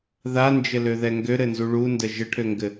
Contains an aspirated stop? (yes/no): yes